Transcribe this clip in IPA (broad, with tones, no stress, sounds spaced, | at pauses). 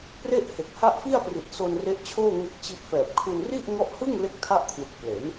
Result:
p r e˥˩ ʔ h e˨˩ k̚ h a˥˩ ʔ f i˥˩ a̯ p r i˨˩ t̚ s o˧ n r e˦˥ ʔ t͡ɕʰ oː˥˩ ŋ e˦˥ k̚ t͡ɕ i˦˥ ʔ f ɛː˨˩ p̚ kʰ u˧ n r i˥˩ ʔ ŋ ɔ˦˥ ʔ h ɯ˥˩ ŋ l e˥˩ k̚ tʰ a˥˩ ʔ kʰ w ɯ˨˩ k̚ p l e˩˦ n